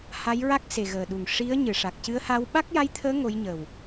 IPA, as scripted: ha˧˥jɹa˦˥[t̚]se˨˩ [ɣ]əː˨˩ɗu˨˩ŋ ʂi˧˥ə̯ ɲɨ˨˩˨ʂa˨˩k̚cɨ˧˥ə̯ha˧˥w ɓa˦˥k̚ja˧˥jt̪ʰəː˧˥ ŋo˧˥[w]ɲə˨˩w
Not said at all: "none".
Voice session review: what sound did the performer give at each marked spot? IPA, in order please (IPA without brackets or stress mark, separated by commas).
k̚, ɣ, j